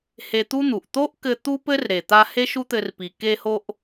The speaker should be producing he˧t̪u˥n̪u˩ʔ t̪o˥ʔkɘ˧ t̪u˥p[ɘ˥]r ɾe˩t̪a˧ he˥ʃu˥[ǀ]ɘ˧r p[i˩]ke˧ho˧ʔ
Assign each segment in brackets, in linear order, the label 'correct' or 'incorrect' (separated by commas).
correct, incorrect, correct